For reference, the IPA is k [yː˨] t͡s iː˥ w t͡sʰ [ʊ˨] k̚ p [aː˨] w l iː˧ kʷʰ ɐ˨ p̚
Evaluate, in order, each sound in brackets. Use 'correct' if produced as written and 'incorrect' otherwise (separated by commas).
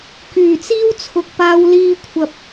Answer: incorrect, correct, incorrect